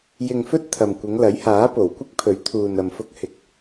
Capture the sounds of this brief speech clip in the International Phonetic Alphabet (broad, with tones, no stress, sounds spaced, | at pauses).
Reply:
j ɪ˧ ŋ f ɵ˥ t̚ t̪ʰ ɐ˨ m kʷ ɪ˨˧ ŋ l ɐ˨˥ j h aː˨˥ p o˨˩ w kʷ ɪ˥ k̚ pʰ ɵ˨˥ ɥ t̪ʰ uː˨ n ɐ˨ m f ʊ˧ k̚ h ɪ˨˥ k̚